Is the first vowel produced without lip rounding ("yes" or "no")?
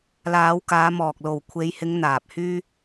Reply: yes